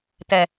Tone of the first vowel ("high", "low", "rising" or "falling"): low